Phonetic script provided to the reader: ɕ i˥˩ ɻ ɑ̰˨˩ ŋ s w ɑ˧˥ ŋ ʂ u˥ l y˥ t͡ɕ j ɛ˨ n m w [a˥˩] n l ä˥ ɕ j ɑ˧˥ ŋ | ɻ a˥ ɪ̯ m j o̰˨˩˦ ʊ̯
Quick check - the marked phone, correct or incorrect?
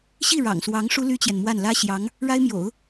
correct